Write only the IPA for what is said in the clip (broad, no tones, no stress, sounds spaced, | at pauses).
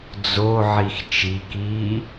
d͡z o ʕ i x t͡ʃ i k iː